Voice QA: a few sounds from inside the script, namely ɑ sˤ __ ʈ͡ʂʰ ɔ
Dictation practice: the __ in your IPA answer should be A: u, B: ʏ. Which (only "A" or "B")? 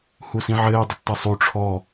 A